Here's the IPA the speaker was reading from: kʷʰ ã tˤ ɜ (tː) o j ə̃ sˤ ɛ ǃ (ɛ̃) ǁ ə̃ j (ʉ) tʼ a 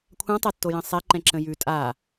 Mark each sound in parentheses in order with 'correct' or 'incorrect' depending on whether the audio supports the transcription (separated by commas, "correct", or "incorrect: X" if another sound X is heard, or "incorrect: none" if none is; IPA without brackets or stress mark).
correct, correct, correct